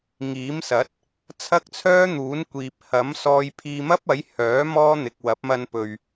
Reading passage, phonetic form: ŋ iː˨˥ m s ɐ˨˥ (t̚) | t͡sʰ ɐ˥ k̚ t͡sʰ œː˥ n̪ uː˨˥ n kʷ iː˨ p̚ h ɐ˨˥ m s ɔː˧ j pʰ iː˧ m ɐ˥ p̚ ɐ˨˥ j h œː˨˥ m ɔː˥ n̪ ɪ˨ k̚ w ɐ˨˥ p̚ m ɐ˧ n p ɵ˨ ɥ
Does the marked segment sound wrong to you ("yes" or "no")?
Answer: no